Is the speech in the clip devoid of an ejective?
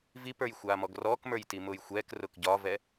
yes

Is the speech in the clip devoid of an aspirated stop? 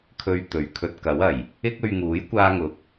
no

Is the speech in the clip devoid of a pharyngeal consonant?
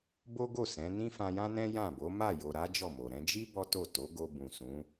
yes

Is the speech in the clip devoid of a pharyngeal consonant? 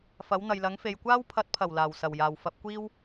yes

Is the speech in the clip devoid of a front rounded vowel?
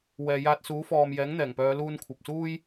no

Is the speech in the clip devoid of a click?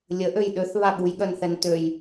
yes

